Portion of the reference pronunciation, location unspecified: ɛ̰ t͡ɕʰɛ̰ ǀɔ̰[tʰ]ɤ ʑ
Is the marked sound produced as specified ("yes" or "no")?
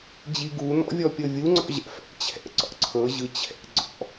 no